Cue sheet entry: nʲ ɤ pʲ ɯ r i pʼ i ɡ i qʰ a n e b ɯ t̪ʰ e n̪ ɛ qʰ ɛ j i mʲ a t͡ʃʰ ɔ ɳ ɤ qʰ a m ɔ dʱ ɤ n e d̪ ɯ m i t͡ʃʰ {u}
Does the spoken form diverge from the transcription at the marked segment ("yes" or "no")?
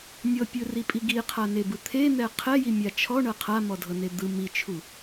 no